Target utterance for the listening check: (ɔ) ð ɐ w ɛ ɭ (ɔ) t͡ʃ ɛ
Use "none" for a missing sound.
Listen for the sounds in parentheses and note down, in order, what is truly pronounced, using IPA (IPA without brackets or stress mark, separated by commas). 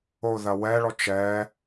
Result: o, ɔ